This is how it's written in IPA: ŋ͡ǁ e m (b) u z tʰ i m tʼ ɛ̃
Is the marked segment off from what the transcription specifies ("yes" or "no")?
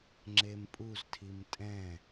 yes